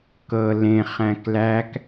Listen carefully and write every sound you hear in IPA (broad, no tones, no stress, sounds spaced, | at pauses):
k ɤ l ẽ χ æ̃ k l æ k